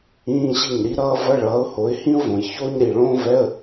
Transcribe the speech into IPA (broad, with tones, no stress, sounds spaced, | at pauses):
ĩː˧˥˧ ɕ i˥˩ ɲ ɾ i˥ ɾ ʌː˥ v ʌ˧˥˧ ɭ ʌː˨˥ ʊ̯ h o˨˥ ɪ̯ h ĩ˥ ʊ̯ v õ˩˧ j ç oː˥ ɲ ɾ i˩˧˩ ɭ õː˥ v ɛ˧˥˧ ə̯